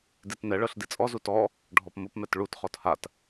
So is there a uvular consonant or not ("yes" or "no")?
yes